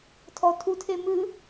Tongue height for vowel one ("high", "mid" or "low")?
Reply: mid